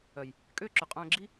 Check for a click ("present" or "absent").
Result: present